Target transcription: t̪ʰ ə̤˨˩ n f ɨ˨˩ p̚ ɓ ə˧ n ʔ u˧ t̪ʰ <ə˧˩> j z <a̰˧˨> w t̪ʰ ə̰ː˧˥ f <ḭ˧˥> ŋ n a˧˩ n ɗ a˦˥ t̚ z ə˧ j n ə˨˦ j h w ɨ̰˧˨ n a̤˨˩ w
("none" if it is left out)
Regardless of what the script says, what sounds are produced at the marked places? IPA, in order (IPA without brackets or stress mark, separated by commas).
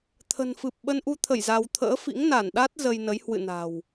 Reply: ə˧˩, a˧, ḭ˧˥